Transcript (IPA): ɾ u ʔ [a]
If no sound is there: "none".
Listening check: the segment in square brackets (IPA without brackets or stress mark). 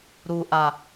a